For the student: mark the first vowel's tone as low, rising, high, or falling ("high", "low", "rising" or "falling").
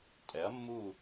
rising